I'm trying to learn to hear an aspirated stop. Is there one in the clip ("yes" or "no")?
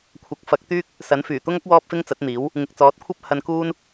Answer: yes